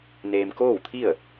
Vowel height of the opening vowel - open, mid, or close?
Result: mid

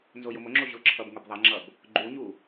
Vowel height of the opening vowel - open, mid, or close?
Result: mid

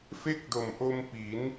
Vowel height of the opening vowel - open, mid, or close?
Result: mid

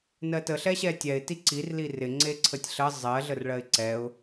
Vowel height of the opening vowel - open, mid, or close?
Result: mid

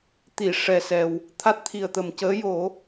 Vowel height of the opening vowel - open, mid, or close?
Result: close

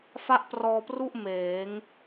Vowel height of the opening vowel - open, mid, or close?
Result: open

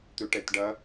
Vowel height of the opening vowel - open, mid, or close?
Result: close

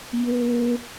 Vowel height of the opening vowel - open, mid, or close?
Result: mid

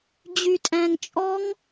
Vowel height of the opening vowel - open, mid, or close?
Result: close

